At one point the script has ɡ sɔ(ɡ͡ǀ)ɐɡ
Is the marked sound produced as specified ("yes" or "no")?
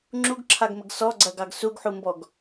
yes